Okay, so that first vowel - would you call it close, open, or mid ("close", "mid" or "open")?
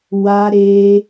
open